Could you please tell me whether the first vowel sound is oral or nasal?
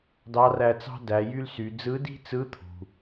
oral